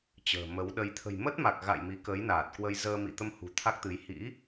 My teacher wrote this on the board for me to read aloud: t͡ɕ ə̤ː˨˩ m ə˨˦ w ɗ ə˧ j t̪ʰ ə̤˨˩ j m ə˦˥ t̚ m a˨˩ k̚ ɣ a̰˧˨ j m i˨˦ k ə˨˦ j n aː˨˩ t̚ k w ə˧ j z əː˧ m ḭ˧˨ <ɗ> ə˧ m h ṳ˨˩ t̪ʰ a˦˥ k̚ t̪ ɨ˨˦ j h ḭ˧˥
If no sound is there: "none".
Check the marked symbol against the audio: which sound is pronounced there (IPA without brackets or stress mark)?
t̪